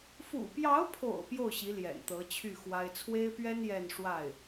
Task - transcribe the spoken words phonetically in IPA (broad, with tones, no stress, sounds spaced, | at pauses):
f ṵ˨˩ p j ɑ˧˥ ʊ̯ pʰ o̰˨˩ ʊ̯ p j o˥˩ ʊ̯ ɕ i˧˥ l j ɛ̰˨˩ n t̪ ɤ˧˥ t͡ɕʰ y˥˩ x w a˥ ɪ̯ t͡sʰ w e˥ ɪ̯ p ɥ ɛ˥ n j ɛ˥˧ n ʂ w a˥˩ ɪ̯